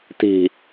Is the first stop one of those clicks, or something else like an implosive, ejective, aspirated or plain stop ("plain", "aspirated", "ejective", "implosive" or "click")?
plain